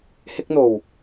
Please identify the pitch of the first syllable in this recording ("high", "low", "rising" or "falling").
high